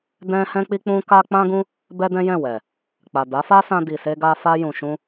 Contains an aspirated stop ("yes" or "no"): no